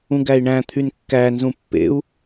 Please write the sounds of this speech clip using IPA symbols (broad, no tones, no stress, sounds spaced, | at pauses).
ũ ɡ æ i̯ ɳ æ̃ t̪ʰ y n kː æ n z ũ pː ḛ u̯